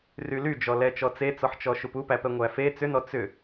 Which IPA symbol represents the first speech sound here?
r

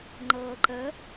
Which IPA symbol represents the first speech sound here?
ŋ͡ǃ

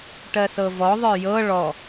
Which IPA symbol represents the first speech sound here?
ʈ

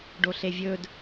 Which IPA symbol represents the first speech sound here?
ɖ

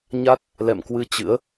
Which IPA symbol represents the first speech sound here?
ɲ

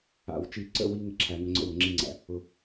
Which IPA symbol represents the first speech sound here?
a̰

